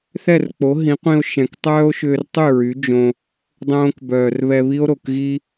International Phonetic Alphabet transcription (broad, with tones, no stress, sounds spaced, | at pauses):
θ ɛ˦˨ r k͡p o˨˦ ɦ ĩ˨˦ qʷ ĩ˧ o̯ ʃ ɛ̃˨ k tˤ œː˦ o̯ ʃ ʏː˧ r tˤ y˦˨ ɹ y˨˦ d͡ʒ õ˧ | dˤ õː˧ k b œː˨ r β ɛ˧ β i˦ o̯ ɾ o˨ k ɣ i˦